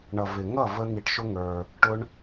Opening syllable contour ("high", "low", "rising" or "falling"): low